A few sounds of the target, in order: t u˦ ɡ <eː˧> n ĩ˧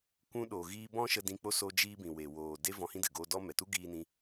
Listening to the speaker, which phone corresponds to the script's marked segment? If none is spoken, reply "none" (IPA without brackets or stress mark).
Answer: iː˧